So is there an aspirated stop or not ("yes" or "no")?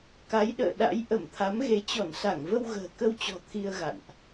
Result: yes